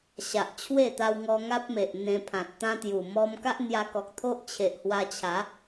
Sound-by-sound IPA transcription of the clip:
ɕ a˨ ʔ t͡ɕʰ w e˥˧ t̪ a˧ w ŋ ɔ˧ ŋ a˦ p̚ m e˨ ʔ n̪ ẽ˧ pʰ ã˨ t̚ t̪ ã˦ t̪ j u˨˩ m ɔ˦ m k a˦ ʔ n̪ j a˧ k ɔ˨ k̚ t̪ʰ o˦ ʔ t͡ɕʰ e˨ ʔ h w a˧ t͡ɕʰ a˨˦

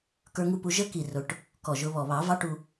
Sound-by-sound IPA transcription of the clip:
k ə˞˧ ŋ u˧ p u˧ ʒ ə˦˥ k i˨˩ r ʊ˨˩˦ ʈ | k ɔ˨˩ ʒ ʊ˧ β ɔ˨˩ β ɑ˨˩˦ v ɑ˦˥ ʈ u˧

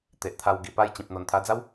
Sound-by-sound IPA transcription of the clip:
t̪ e˨ ʔ t̪ʰ a˧ w ɡ i˨˩ p a˥˧ j t͡ɕ ĩ˨ p̚ n̪ o˨˩ n t̪ʰ a˧ d͡z a˦ w

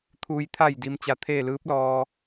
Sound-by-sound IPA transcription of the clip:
t̪ʰ uː˩ j t̪ʰ a˧˩ j d i˩ m t͡ɕ a˧ t̪ʰ eː˥˨ l ɯː˧˥ p̚ l ɔː˧

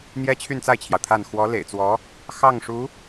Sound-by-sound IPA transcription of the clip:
n̪ j ɛ˥ t͡ɕʰ y˥˧ n t͡s a˥˩ ɪ̯ t͡ɕʰ j ɑ˩ ʊ̯ t̪ʰ a˥˩ n x w ɔ˧˥ l ḛ˨˩ ɪ̯ t͡s w ɔ˧˥ | x ɑ˥˩ ŋ ʂ u˧˥

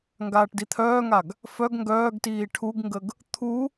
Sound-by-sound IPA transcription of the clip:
ŋ ɡ aː ʈ d i t̪ʰ œː ŋ a ɡ | f œ ɡ ŋ ɡ œː ɡ t iː ʈʰ u ɡ ŋ ɡ ə ɡ | t̪ʰ u

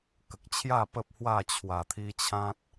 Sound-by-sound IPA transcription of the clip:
k ə˨ k̚ t͡ɕʰ j a˥˧ p ə˦ p̚ h w a˥˧ t͡ɕʰ w a˨˩ t̪ʰ i˧ t͡ɕʰ ã˦ t̚

